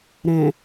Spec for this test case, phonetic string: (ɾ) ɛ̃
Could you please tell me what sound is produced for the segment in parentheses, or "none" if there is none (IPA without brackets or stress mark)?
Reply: ɾ